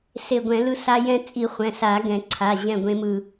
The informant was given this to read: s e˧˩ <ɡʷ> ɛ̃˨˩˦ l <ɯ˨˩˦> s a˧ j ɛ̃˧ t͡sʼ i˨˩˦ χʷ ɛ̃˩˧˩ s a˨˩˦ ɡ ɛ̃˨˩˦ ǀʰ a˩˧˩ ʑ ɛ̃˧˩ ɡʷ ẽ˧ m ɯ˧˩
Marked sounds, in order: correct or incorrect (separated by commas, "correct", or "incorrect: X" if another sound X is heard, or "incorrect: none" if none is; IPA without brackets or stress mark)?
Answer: correct, incorrect: ɯ˧